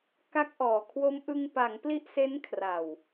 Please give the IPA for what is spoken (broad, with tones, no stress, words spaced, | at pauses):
ka˦˥k̚ʔɔː˨˩kʰwo˦˥m ʔɯ˧ŋpa˩˦ŋ pli˦˥ʔse˦˥nkʰra˨˩w